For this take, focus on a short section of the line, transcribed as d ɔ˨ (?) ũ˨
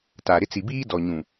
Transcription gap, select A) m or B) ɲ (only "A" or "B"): B